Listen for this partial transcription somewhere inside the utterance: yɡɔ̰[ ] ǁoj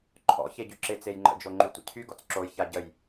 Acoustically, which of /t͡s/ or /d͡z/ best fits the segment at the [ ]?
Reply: t͡s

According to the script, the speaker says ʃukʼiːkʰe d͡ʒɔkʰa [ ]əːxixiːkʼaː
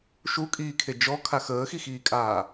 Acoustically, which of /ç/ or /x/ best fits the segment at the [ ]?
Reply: x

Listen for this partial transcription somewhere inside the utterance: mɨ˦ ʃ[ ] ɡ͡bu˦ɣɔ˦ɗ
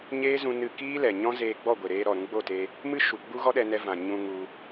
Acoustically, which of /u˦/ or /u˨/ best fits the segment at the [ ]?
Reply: u˨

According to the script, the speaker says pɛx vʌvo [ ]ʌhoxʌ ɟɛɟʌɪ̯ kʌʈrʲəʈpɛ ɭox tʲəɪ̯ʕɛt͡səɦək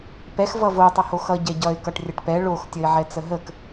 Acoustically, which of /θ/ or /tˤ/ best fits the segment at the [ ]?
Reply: tˤ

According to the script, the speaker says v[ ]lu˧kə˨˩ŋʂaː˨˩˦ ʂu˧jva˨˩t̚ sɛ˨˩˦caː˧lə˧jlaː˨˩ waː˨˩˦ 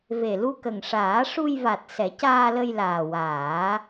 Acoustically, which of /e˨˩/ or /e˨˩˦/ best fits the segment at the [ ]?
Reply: e˨˩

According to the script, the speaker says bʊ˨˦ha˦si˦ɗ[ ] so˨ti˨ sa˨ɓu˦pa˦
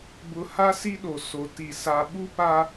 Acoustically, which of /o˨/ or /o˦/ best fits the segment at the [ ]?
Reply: o˨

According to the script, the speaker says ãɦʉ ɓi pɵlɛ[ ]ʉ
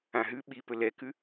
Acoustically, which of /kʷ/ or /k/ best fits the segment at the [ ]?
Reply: k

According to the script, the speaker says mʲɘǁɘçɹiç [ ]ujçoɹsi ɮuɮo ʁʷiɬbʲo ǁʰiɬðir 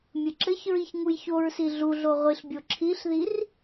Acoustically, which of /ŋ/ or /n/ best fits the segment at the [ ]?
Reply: ŋ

